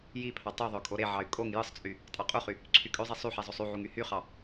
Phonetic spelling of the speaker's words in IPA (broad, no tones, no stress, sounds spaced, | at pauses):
j i pʰ ɑ tˤ y ðˤ ø kʼ o ɾ e ʕ ɑ y̯ kʼ o ŋ j ɯ sˤ t͡sʼ y | tʼ ɑ qʼ u χ y | ǀʰ y kʼ ø zˤ i sˤ y ħ e zˤ o sˤ y ʕ u ŋ y h y χ ɑ